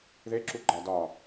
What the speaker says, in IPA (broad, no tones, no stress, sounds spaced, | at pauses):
ð e ǁ u ɡ͡ǃ æ d ɒ